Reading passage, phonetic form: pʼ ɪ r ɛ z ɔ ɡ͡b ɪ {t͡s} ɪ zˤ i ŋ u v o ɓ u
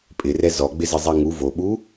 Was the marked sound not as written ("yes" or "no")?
yes